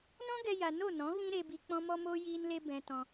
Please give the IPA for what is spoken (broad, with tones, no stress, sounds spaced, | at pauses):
n ɔ̃˦ ɡ ɛ˧ j a˧ n o˦˨ n ɔ̃˨˦ ɣ ĩ˦ ɾ e˧ b i˧ k͡p ɔ̃˦ m ɔ˦ m o˦ j iː˦ n l e˦ b ɛ̃˧ t ɔ̃˧